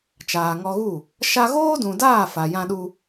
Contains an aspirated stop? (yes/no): no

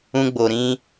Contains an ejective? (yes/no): no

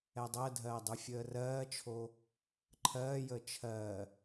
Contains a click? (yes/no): yes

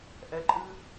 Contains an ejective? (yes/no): yes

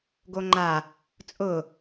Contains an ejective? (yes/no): yes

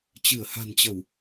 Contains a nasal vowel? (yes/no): no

